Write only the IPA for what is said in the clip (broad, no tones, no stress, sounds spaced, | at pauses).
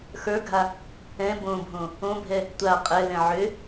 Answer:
x ə˞ ɡʱ a | ɛ̃ b õ bʱ õ | õ bʱ ɛ | tʷ a qʼ ɛ l ɛ̃ ʕ ø